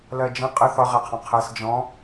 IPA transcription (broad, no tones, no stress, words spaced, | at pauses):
lɜd͡ʒə̃ qʼə θɒʁæqʰɔ̃ qʰæs d͡ʒɔ̃